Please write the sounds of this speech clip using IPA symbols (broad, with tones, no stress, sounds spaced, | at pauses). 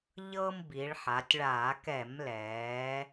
ʎ ɤː˦ m b i˩˧ ɭ ħ a˩˧ tʲ ɭ aː˧˩˧ k ɛ˧˩˧ m l ɛː˩˧